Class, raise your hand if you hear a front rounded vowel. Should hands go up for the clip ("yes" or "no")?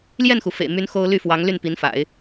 yes